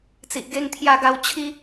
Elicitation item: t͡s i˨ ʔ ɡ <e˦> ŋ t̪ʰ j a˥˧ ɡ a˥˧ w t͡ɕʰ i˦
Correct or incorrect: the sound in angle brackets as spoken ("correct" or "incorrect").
correct